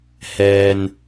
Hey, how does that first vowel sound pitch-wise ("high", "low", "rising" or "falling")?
low